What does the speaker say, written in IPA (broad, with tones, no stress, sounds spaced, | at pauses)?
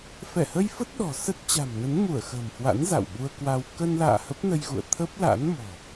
f ɛ˧˩ h ə˧ j f ə˦˥ t̚ ɗ ɔ̤˨˩ s ə˦˥ t̚ t͡ɕ a̤˨˩ m n ə˨˦ n m u˧˩ ə̯ x ə̤ː˨˩ m h w a̰˧˥ n z a̰˧˨ w ɓ u˧ ə̯ k w a˧ w k ə˧ n l a̰ː˧˨ h ə˦˥ p̚ n ə˧ j ɣ ṵ˧˨ ə̯ t̪ʰ ə˦˥ p̚ l a̰˧˥ n m ɔ̤˨˩